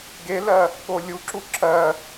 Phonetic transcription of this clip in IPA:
ɡ e l ɜ | ɠ o lʲ u ǁ u ǁ ɜ

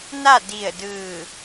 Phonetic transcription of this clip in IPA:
n a˥˨ d i˧˩ ə̯ d ɯː˧˩

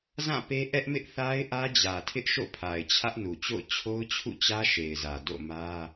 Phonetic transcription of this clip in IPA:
z ã˦˨ p e˦ ʔ ɛ˦ ʔ m ɪ˦ ʔ θ a˦ ɪ̯ ʔ ä˦ d͡ʑ ä˨ tʰ ɪ˦ ʔ ʃ o̰˦˨ pʰ a˨ ɪ̯ t͡ɕʰ ä˦ ʔ n u˨ t͡ɕ o̰˦˨ ʊ̯ t͡ɕʰ o˦ ʊ̯ t͡ɕʰ ṵ˦˨ t͡ɕ ä˦ ʃ e˨ ɪ̯ z ä˨ d o̰˦˨ m ä˦

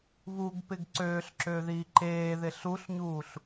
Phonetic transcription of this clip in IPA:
β u ɡ p ɪ ɡ ǀ øː ɬ ǁ øː ð iː ǃ eː ð ɪ ɬ u ɬ ɲ uː ɬ

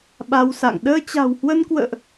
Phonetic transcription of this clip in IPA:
ɓ a˧ w s a̰˧˨ ŋ ɗ əː˧ t͡ɕ a̤˨˩ w h w ə˧ n k w ə̰ː˧˨ ʔ

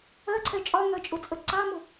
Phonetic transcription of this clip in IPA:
ɜ ǀʰ ɛ t͡ʃʼ ɒ ŋ ɜ t͡ʃʼ ʊ t͡sʼ ə ǀ ɑ m ʊ

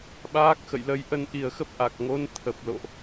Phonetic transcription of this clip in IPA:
ɓ aː˦˥ k̚ x ə̰˧˨ j l ə˨˦ j ʔ ə˨˦ n ʔ i˨˩ ə̯ x ə˦˥ p̚ ʔ a˨˩ k̚ ŋ o˨˦ n t̪ʰ ə˨˩ p̚ l o̰˧˨ ʔ

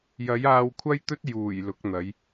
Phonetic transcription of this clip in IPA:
j ɐ˨˥ j aː˧ w kʷʰ ɐ˥ j t̪ ɵ˥ t̚ j uː˨˩ j l ʊ˨˥ k̚ n̪ ɐ˨˥ j

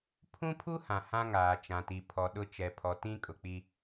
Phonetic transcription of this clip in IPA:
pʰ ũ˦ pʰ u˦ h ã˨ h ã˦ ŋ aː˨ t͡ʃ ã˨ t i˨ pʰ ɔ˨ ɗ ʊ˦ t͡ʃ ɛ˨ pʰ ɔ˨ t ĩ˦ kʼ ʊ˨ k͡p i˦

